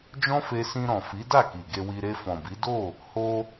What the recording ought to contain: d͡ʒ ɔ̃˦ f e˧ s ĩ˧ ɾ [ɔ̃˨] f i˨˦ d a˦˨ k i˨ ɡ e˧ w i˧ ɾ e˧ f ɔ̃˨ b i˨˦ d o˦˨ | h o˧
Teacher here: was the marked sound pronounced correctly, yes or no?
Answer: yes